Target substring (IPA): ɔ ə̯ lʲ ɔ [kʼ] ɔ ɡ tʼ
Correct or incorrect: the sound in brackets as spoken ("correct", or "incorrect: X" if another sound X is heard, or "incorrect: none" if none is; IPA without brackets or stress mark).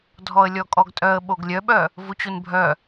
correct